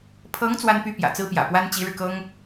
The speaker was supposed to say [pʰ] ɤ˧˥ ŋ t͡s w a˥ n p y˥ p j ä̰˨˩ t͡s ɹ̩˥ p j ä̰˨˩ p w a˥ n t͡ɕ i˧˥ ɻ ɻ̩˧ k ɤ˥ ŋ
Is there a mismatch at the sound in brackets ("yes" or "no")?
no